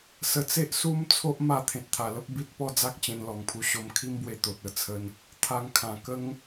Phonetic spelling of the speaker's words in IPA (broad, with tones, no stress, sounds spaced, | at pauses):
s ə˧ t͡s e˦ ʔ s u˦ m t͡sʰ o˦ ʔ m a˥˧ t̪ʰ ẽ˨ t̚ t̪ʰ a˨˩ l ə˦ p̚ b i˦ t̚ p ɔ˦ d͡z a˦ k̚ t͡ɕ ẽ˧ n l ɔ˨˩ ŋ pʰ u˧ ɕ o˧ m kʰ i˦ m b w e˧ t̪ o˨ t̚ ə˥˧ t͡sʰ ə˧ n | t̪ʰ a˧ ŋ kʰ ã˨˩ k ə˦ ŋ